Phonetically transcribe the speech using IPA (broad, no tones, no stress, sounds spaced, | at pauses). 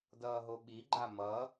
d ʌː ɦ o ɓ i ɡ͡ǃ a m ʌ